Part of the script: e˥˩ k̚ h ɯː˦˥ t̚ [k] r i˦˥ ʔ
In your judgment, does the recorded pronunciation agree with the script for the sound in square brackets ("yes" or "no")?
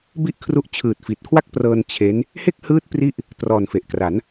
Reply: no